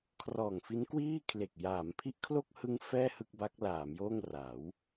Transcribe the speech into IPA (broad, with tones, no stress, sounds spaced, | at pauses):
kʰ r ɔː˨˩ ŋ f i˦˥ n k w iː˥˩ kʰ l e˨˩ k̚ j aː˩˦ m pʰ i˦˥ ʔ kʰ l o˥˩ k̚ h ɯ˦˥ ŋ f ɛː˥˩ h ɯ˥˩ k̚ b a˦˥ k̚ l aː˩˦ m j oː˥˩ ŋ r a˩˦ w